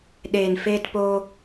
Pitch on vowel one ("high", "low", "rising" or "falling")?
low